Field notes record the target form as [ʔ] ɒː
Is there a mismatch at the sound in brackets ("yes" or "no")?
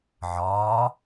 yes